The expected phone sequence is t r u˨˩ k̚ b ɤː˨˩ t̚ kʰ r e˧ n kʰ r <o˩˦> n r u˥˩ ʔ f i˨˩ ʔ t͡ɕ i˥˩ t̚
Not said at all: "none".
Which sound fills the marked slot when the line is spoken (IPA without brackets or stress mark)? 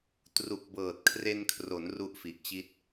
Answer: o˩˦